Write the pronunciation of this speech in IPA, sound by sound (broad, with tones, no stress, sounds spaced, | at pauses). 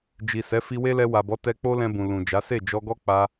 d͡ʒ i˨ s ɛ˨˦ f i˧ w e˦ l ɛ˧ w a˨ b ɔ˨˦ t ɛ˧ k͡p o˦ l ɛ̃˧ b ũ˨ l ũ˨ d͡ʒ a˨˦ s e˦˨ d͡ʒ ɔ˧ ɡ ɔ˦ k͡p a˧